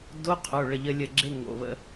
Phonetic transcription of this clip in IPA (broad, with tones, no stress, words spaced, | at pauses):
do˧˥˧qʰo˩˧˩ ɭə˧˩ʎə˧lʲə˧˩ɡ͡ǁe˧˥˧ ŋo̰˩˧˩βə̰˧˩˧